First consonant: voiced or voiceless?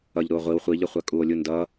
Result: voiced